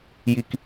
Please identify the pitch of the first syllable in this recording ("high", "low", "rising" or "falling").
low